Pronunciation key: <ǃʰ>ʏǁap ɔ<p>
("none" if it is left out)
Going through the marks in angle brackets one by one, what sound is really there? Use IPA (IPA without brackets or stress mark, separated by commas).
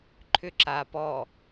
ǃʰ, none